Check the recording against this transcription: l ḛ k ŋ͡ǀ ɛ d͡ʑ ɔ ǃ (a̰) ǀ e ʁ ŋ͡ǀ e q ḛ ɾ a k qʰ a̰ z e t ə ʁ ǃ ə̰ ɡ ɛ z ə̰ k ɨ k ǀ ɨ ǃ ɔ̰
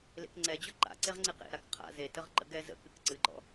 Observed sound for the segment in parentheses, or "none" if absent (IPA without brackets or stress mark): a̰